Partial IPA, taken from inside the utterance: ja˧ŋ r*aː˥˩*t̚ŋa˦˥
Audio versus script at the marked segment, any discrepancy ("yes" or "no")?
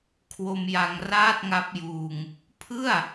no